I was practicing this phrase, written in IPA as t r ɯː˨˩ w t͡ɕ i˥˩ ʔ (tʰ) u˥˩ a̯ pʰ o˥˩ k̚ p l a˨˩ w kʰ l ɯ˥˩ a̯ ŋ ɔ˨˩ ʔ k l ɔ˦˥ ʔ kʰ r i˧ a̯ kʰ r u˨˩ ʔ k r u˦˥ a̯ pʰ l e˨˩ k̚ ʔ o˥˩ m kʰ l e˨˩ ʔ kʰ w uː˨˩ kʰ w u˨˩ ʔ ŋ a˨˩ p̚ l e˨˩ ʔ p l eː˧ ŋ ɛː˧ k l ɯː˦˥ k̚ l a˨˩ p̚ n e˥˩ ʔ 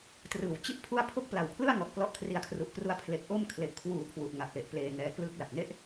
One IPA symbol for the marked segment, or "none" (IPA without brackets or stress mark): pʰ